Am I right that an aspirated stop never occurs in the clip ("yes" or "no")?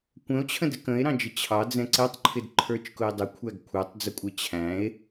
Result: no